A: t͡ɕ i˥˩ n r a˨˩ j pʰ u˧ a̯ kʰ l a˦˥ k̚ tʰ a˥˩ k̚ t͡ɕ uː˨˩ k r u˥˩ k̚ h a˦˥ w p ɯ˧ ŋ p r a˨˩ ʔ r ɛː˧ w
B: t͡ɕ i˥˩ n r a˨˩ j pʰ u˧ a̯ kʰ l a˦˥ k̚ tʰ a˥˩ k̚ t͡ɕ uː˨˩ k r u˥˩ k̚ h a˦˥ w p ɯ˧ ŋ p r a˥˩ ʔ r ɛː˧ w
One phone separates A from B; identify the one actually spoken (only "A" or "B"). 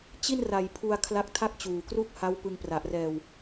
A